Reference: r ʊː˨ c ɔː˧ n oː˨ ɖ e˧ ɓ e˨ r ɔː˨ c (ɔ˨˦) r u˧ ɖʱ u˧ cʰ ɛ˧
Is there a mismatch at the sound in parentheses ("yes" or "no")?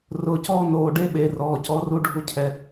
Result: no